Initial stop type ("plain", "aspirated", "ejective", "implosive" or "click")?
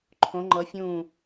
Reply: click